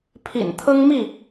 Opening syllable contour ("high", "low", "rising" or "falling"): low